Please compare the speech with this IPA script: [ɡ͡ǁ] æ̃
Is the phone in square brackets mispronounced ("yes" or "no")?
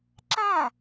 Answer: yes